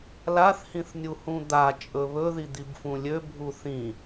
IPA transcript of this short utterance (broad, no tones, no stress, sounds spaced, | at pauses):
l a θ h ĩ θ nʲ u h ũ d̪ a t͡ʃʼ ɵ β ɵ ð i d̪ i b f ũ lʲ ø bʱ u θ ĩ